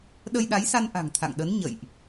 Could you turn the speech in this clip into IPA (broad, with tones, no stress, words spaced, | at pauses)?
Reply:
ɗə˧jɗa˨˦jsa˧n ʔa̤˨˩ŋt̪ʰa̰˧˨ŋɗə˨˦n ɲə̰˧˨jʔ